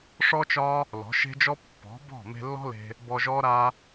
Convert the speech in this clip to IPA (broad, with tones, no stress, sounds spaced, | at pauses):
ʂ ɔ˦ t͡ʃ ɒ˦ | l ɔ̤˨˦ ʃ e̤˦ d͡ʒ ɔ˦ pː ɔ̤˨˦ b ɔ̤˦˨ m e̤˧ lː ɔ̤˦ l e̤˧ | b ɔ˧ ʒ ɔ˦ ɾ a˦